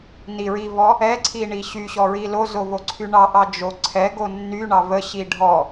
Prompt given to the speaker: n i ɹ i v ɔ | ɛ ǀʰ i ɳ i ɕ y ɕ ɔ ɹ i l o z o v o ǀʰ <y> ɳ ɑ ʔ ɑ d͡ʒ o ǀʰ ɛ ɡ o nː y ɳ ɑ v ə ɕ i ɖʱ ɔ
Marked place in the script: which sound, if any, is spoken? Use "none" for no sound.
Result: y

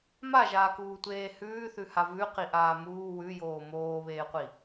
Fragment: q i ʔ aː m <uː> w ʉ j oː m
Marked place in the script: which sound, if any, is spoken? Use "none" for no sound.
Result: uː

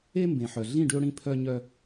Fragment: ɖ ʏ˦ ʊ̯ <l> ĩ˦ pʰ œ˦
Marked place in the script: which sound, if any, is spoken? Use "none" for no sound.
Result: ɽ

